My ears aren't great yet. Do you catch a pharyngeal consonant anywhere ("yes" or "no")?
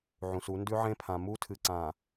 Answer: yes